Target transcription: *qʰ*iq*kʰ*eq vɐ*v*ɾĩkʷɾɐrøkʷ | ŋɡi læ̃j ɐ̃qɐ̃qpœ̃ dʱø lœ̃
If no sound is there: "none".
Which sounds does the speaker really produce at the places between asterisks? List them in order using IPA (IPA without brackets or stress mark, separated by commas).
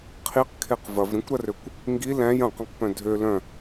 qʰ, kʰ, v